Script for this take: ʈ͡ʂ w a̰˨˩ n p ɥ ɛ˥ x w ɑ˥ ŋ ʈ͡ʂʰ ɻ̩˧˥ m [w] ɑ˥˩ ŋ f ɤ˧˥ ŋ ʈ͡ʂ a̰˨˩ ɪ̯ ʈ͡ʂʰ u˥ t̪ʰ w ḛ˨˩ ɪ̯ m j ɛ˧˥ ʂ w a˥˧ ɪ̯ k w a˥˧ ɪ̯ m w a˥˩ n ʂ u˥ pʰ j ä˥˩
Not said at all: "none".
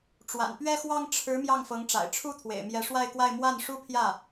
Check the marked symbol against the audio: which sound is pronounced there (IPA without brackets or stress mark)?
j